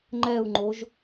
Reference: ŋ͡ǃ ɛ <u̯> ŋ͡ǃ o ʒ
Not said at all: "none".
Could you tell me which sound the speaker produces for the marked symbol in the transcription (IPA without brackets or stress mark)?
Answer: u̯